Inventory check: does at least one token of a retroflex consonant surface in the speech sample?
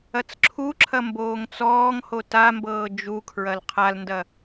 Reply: no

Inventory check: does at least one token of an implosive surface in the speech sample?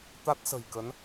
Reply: no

